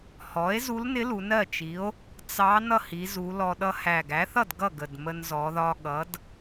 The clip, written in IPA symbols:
hɔ˩˥e̯zu˧˥lnɪ˧˥ lu˩˧nɜ˥˩t͡ʃi˩˥o̯ | t͡sɑ˧˥ nʌ˥˩hi˩˧zu˩˧ lɔ˧ ɗʌ˧hæ˨˩ɡæ˩˥θʌ˥˩d ɡʌ˥˩ɡə˨˩d mə˧n zɔ˩˧ðɒ˧ ɠʌ˩˥d

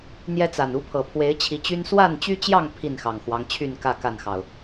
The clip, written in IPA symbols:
n̪jɛ˦t͡sa˨˩n u˨˦pʰɤ˨˩pʰwe˨˦ɪ̯ t͡ɕʰi˨˦t͡ɕy˦n swa˥˨nt͡ɕy˦t͡ɕjɑ˥˨ŋ pʰi˥˨nxɑ˨˩ŋxwɑ˦ŋ t͡ɕʰy˥˨nkä˥˨ ka˥˨nxɑ˨˩ʊ̯

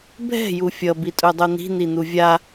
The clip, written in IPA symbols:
bʱɛ̤ jufʲʌ bitʼudˤun̪i̤ n̪in̪uvʲa

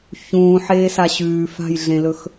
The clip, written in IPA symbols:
çũːħeː saɕʉː fa̤jɮẽlɵx

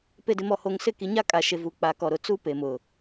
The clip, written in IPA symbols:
pe˨dɪ˨ mɔ˨ho˨ŋsɪ˦˨ ki˨ɲa˦ kʼa˨ʃe˨vu˨˦ k͡pa˨kɔ˨ ɾʊ˨t͡su˦ pe˨mʊ˨

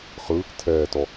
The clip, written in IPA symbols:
χɯ | tʰɛːtɔ

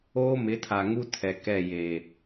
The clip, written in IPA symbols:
oː˦mɪ˨˦ tʰa˨ŋu˦tʰɛ˨ kɛ˦˨je˨

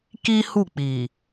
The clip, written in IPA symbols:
ki˦hu˦˨k͡pi˨

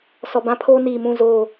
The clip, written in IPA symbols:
sɔ˨bã˦pʰoː˦ niː˨mũ˦˨ zoː˦˨

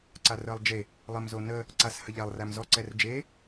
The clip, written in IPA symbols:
ǀarəːlˠd͡ʒe | lˠemzonəː | ǀashəʎalˠ ræmzɔ ǀɛrd͡ʒeː

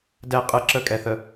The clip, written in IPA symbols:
dɛ qʼə ǁəkʼɛθə

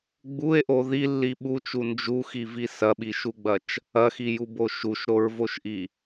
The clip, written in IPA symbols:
ɡ͡bue̯ʔo ðilːi ɓut͡ʃu nd͡ʒuxivi sɐɓiʃuɡ͡bɐt͡ʃ | ɐxijubo ʃuʃɾoɹvoʃʔi

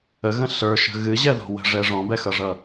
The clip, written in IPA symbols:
əɣə̃ ɬə˞ʃə̤ ɣɨʑɛðɔ̤ wə̤ʐɛ ʐɔ̃bɛxʌʐʌ

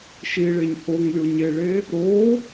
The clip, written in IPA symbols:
ʃiɭeɲ hoŋlʲo ɲeɭe | ɾo

